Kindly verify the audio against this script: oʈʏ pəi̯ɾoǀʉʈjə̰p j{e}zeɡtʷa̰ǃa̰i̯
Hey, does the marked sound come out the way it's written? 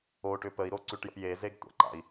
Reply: yes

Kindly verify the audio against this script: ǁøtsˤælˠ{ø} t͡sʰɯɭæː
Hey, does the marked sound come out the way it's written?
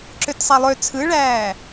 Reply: yes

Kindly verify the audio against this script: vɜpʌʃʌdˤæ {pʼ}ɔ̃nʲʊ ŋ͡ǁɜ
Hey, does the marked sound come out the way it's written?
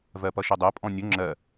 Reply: yes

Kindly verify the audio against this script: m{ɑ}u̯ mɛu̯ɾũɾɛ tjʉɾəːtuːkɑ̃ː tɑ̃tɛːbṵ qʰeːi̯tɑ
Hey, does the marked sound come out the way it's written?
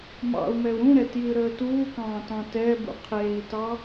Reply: no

